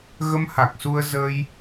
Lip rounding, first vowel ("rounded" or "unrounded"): unrounded